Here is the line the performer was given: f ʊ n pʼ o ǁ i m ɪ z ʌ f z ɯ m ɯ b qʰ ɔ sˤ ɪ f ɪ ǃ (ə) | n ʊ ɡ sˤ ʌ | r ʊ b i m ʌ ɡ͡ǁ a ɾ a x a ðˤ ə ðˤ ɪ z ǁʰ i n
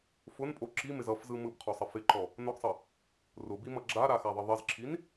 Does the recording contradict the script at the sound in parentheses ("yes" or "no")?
yes